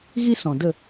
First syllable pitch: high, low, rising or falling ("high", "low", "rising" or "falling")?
high